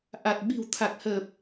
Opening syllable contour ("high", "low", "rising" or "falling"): low